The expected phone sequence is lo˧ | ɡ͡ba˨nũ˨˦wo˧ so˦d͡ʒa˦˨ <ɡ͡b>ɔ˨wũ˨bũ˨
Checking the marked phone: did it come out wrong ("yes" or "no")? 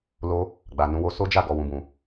yes